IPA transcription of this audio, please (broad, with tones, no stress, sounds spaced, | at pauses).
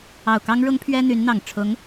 ɑ˨˩ ʊ̯ k ɑ˥ ŋ ɻ ʊ˥ ŋ pʰ ɥ ɛ˥ n̪ y˧˥ n n̪ ɑ˨˩ ŋ ʈ͡ʂʰ ʊ˧˥ ŋ